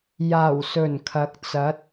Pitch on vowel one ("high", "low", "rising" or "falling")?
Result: low